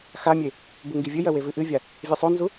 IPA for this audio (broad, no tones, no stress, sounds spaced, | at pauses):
x a mʲ e | b u ŋ ɡ i vʲ ɘ j ɐ w e v ɨ ʔ ɨ vʲ a | vʲ ɘ sˤ o n z u